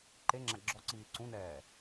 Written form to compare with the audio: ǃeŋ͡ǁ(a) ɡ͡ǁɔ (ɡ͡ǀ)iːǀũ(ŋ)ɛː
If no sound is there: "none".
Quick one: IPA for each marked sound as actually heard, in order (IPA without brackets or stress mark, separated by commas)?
a, ǀ, n